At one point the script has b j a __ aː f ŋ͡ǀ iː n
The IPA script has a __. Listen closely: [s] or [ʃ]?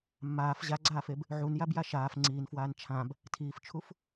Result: ʃ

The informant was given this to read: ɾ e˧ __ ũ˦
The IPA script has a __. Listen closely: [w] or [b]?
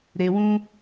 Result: w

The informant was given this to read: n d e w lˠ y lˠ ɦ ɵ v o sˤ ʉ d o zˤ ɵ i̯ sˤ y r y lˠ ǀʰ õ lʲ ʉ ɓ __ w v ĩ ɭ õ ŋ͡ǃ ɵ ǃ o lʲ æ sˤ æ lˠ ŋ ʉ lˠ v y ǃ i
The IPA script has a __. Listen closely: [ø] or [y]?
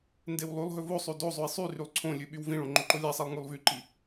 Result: y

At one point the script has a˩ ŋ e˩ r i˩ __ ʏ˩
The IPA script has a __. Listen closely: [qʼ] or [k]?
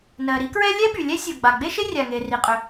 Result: qʼ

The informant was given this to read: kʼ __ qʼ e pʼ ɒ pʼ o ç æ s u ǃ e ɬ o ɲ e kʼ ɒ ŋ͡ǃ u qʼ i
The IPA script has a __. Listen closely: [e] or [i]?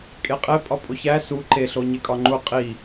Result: e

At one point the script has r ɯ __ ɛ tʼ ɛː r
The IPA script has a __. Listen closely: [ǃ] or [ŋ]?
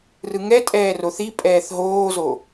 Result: ŋ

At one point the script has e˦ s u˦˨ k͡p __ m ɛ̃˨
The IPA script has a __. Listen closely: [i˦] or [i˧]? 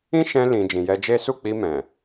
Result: i˧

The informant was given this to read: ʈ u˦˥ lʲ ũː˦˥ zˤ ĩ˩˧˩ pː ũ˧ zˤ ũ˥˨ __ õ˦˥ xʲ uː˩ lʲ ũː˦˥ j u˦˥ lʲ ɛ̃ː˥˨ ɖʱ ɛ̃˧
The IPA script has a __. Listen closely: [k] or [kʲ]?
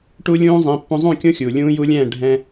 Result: kʲ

